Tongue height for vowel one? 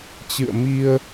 high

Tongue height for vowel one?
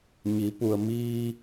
high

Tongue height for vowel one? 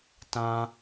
low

